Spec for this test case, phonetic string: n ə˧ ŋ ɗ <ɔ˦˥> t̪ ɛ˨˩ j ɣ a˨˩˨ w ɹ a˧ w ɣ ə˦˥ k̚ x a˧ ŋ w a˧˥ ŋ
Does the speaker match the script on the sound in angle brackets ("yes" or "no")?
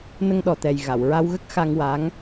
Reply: no